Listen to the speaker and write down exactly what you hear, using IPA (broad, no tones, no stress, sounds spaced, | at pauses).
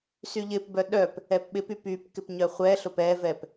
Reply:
s y ʎ ɪ p b œ ɗ œ p | ɛ p ɓ ɪ p y p y p k ɪ p ɲ œ χʷ ɛ ɬ ʊ p ɛ v ɛ p